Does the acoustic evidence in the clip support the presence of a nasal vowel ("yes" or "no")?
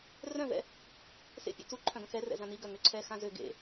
yes